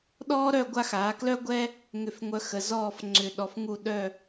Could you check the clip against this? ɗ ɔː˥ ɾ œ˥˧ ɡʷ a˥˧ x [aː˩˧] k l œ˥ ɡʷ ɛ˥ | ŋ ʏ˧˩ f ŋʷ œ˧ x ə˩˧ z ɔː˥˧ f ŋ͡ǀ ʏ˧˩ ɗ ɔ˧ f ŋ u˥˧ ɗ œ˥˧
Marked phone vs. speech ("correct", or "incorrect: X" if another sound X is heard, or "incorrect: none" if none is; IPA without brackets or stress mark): correct